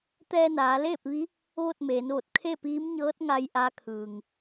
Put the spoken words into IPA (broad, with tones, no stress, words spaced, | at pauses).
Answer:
t̪ɛː˧naː˩˧leː˥˨p̚ʋi˧˥ | ʋo˥˨t̚meː˩˧nʋo˧˩t̚ kʰe˥˨piː˧˥mɲɤː˧˥t̚ŋa˧j ʔa˧˥kʰɯː˩ŋ